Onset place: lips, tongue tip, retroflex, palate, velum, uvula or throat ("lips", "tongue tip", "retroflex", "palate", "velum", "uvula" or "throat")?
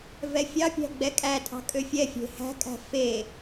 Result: lips